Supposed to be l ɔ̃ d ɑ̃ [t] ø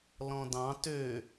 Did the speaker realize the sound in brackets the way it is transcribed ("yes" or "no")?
yes